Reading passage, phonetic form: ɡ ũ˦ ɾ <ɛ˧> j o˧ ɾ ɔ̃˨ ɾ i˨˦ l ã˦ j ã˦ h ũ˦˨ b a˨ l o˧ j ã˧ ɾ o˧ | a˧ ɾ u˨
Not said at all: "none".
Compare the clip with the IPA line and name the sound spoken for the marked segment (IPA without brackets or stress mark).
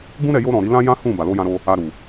ɛ˧